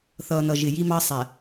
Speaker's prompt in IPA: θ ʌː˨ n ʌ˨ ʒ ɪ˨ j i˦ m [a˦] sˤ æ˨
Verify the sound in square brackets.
incorrect: ɑ˦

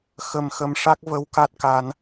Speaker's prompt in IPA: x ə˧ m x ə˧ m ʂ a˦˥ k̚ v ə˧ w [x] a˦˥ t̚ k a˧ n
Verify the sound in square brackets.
incorrect: k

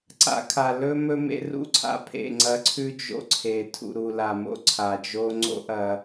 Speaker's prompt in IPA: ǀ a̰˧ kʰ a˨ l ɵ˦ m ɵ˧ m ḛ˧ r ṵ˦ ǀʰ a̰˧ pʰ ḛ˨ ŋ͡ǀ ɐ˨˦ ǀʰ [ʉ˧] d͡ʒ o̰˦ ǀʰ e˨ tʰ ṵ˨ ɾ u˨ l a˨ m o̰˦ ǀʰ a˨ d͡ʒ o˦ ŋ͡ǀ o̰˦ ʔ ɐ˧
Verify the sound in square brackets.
correct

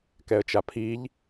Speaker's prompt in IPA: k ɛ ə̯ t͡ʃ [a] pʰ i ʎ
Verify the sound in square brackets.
correct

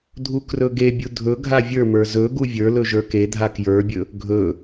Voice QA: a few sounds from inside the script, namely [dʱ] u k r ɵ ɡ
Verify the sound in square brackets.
correct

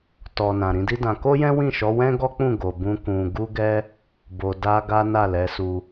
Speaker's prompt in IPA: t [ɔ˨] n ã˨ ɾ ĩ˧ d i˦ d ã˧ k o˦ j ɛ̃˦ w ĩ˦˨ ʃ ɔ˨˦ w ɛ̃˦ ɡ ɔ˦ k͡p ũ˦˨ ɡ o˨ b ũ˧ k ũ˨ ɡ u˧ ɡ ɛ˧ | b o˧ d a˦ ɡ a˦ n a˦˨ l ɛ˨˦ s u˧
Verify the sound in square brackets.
correct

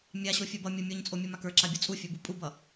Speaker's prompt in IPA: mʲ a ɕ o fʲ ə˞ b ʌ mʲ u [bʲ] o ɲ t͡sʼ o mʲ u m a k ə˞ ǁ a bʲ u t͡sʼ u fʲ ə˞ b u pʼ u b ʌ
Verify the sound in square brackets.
incorrect: mʲ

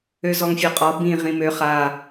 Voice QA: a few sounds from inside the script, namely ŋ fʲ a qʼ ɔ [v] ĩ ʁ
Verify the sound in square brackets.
incorrect: b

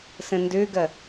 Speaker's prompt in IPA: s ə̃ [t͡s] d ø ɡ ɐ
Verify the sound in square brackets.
incorrect: n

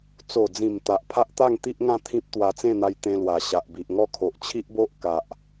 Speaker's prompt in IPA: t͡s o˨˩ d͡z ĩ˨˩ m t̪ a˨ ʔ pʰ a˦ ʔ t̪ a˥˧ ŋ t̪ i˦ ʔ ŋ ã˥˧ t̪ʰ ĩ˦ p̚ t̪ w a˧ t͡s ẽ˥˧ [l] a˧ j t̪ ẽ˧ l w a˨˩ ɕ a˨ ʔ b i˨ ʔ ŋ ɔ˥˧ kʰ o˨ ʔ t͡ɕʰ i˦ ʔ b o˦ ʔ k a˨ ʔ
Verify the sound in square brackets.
incorrect: n̪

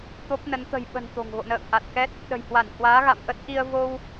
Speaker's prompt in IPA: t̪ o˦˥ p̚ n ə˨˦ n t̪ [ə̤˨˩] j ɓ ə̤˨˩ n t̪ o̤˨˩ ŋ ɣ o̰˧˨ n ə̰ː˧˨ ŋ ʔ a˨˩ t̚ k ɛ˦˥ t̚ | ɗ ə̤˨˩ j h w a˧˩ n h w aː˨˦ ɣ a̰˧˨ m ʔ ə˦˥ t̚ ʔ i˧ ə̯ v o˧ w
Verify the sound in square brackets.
correct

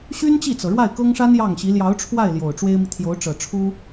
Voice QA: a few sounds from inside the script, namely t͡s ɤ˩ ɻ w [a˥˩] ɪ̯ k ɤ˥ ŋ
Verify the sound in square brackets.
correct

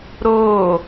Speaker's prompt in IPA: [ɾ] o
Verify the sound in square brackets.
correct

